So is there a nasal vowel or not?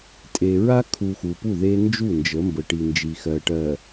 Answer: no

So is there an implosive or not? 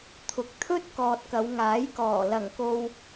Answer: no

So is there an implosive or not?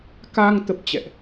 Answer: no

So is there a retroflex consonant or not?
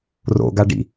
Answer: yes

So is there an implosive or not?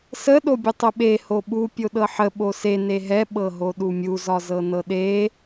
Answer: yes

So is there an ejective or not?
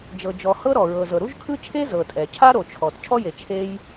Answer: yes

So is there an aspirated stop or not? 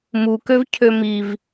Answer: yes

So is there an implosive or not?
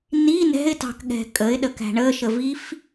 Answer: yes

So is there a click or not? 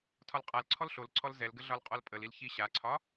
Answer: yes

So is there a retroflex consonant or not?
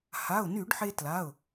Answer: yes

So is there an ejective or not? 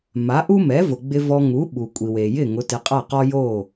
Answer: yes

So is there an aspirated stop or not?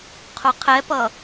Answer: yes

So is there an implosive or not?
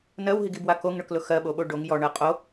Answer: yes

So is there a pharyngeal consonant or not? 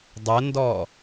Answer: no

